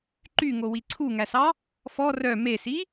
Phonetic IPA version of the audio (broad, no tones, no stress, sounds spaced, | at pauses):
ǃ y ŋ o w i ǀʰ u ŋ æ s ɑ | f ɔ r œ m e s i